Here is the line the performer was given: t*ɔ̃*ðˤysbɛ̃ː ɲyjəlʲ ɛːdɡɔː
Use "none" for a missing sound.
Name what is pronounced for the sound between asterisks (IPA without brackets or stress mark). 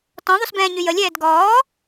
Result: ɔ̃